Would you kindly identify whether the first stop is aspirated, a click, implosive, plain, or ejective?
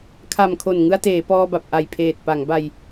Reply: aspirated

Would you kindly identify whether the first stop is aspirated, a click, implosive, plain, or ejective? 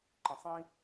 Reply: click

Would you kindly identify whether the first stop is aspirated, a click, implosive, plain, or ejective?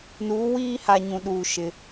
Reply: implosive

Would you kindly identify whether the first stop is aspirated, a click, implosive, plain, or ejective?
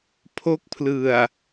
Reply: aspirated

